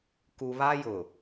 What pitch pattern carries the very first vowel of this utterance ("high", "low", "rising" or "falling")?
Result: low